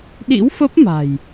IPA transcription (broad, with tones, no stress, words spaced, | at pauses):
ɗḭ˧˥wfə˦˥p̚ma̤˨˩j